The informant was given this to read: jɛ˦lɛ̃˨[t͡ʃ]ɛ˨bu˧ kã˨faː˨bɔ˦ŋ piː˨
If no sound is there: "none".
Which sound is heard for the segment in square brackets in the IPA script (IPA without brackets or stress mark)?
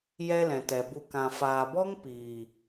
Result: t